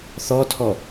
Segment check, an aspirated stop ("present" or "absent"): present